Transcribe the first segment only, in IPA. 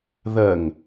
ð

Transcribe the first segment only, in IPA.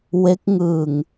w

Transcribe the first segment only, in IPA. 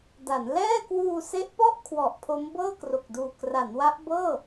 d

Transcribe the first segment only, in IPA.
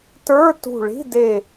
t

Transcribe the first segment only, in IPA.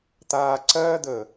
t̪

